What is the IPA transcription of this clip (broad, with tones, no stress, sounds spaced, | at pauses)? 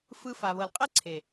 f ɯ˧ f a˨ β ɤ˨ l qʼ ɛ˦ ǀʰ e˨